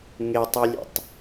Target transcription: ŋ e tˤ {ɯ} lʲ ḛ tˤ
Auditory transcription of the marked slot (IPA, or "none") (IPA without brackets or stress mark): u